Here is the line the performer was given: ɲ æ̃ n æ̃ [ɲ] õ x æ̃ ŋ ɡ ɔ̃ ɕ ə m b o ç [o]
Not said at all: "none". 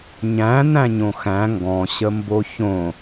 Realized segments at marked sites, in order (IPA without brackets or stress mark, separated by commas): ɲ, õ